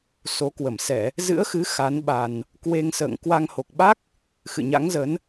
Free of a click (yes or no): yes